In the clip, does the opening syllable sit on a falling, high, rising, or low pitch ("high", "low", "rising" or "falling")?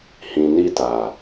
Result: low